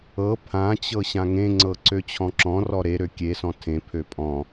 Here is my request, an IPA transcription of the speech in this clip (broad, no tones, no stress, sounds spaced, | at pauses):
ɤ pʰ ã t͡ɕ ɤ ɕ ã ŋ ẽ ŋ͡ǀ ɤ ǀ ø t͡ɕʰ ɔ̃ ǁ ɔ̃ r ɔ ɾ e ɾ ø kʲ e s ɔ̃ tʰ ẽ pʰ ø pʼ ɔ̃